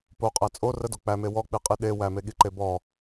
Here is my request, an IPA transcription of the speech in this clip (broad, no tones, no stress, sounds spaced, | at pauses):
p o qʼ æ t͡sʼ o r ə d o k͡p æ m e w ɔ k͡p i qʼ i ɗ e w æ m e ɠ i ǃ e b ɔ